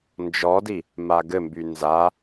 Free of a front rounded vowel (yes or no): no